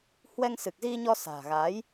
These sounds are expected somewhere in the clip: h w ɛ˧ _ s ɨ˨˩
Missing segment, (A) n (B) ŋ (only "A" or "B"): B